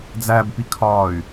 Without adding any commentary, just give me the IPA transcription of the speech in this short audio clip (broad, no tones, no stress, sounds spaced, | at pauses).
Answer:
d͡z æ b p i kʰ ɒː y̯